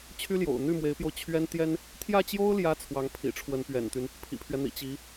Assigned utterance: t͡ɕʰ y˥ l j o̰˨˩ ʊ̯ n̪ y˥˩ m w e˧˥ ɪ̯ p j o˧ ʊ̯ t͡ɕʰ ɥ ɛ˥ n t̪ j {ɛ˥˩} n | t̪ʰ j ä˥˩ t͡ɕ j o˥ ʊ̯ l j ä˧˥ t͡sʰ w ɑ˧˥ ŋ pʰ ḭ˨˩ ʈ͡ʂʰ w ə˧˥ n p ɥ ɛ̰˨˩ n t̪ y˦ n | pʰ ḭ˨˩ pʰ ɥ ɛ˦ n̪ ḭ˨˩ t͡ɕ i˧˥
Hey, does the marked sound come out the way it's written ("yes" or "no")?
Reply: no